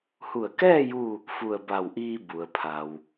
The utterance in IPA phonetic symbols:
h u˧˩ ə̯ k ɛː˥˨ j u˥˨ | f u˧˩ ə̯ b a˧˩ w ʔ iː˧ b u˩ ə̯ pʰ a˩ w

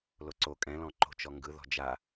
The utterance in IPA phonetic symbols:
l o ǀ o kʼ ɛ̃ l ɔ̃ ǃ o̤ t͡ʃ ɔ ŋ ɡ ɯ ð ɔ̤ d͡ʒ a

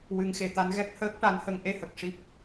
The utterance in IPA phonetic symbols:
w ɨ˨˩˦ ŋ x e˨˩ t̪ a˧ n ɣ ɛ˦˥ k̚ h əː˦˥ k̚ ʈ a˧ n h ə˧ ŋ ʔ e˧ h ə˨˩ k̚ ʂ i˦˥ p̚

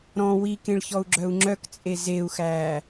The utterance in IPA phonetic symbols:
ɾ ɔ̃ w i k ẽ ɭ ç ɔ u̯ ɡ͡ǁ œ u̯ ŋ͡ǁ œ k t͡sʼ e z e u̯ x æː

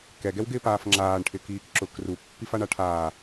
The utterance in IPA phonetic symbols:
k ɛ ɡ ɛ w ɡ ɪː p aː f ŋ͡ǁ aː ɳ ʈʰ ɪ k iː k ǁ ʊ k r u pː i f a ɳ a ʈʰ aː

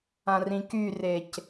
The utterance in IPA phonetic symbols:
ã r ĩ k y r e c

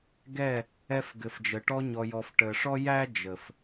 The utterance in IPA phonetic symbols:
ɡ ɛ˦˨ | ɛ˧ f ɡ ɘ˨ f d͡ʒ ə˨ ʈ ɔ˧ ɲ ɔ˨ j ɔ˨ f ʈ ə˨ ʂ ɔ˦ j æ˦ d͡ʒ ə˨ f

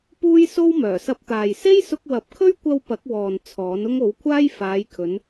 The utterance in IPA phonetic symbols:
p uː˥ j s o˥ w m œː˨˩ s ɐ˧ p̚ t̪ aː˨ j s e˥ j s ʊ˧ k̚ w ɐ˨˥ p̚ kʰ ɵ˥ ɥ kʷ ɐ˧ w p ɐ˨˥ k̚ w ɔː˨ n t͡sʰ ɔː˨˥ n ʊ˥ ŋ o˨˥ w kʷʰ aː˥ j f aː˨˧ j kʰ ɵ˨˧ n

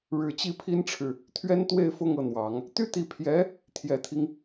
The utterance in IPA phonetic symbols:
ɻ ɻ̩˨˩ t͡ɕ i˥˩ pʰ i˥ n ʈ͡ʂʰ ɻ̩˨ | t̪ʰ ɥ ɛ˥ n t̪ w e˥˧ ɪ̯ f ʊ˥˧ ŋ ɤ˥˩ n̪ w ɑ˨˩˦ ŋ | t̪ y˥ t̪ i˧˥ pʰ j ɛ˧˥ | t̪ʰ j ɛ˨˩ t̪ʰ i˦ ŋ

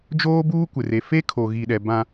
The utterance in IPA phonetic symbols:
d͡ʒ oː˦ b uː˦ kʷ ɪ˨ r e˨ f e˦ kʰ o˨ ɣ i˨ ɗ ɛ˨ b ã˦

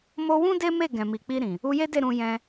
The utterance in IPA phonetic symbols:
m o˧ w ũ˦ d e˦ m e˦˨ ɡ ɛ̃˨ m i˨ k͡p i˧ ɾ ĩ˨ | u˧ j e˦ d e˦˨ ɾ ũ˧ j ɛ̃˧

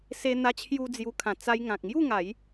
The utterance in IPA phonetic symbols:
s e˧ n̪ a˧ t͡ɕʰ j u˧ d͡z j u˧ kʰ ã˨˩ t͡s a˧ j ŋ ã˨ k̚ ŋ j u˥˧ ŋ a˨˦ j

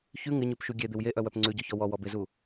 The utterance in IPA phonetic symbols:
ç ʉ ŋ ɪ ɲ ʉ p ʃ u ɡʲ e d̪ ɪ w j e ʔ œ w œ p ŋ͡ǀ ʉ ɟ ɔ ç ɔ w ɔ w ɔ b ɪ z u

